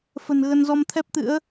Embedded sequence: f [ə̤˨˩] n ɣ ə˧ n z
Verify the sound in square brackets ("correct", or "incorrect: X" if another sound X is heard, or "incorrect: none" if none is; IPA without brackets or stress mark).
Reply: correct